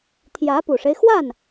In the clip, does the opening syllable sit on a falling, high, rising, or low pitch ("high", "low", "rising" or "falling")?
rising